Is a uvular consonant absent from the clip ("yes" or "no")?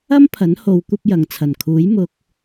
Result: yes